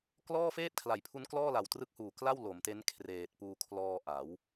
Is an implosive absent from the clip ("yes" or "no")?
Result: yes